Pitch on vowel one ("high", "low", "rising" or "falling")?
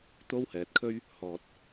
high